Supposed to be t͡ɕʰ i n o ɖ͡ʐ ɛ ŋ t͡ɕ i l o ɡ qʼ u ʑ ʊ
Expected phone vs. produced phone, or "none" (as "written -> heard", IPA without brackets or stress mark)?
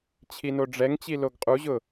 none